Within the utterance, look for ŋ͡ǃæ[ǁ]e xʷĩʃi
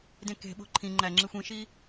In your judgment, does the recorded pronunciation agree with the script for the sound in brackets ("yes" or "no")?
no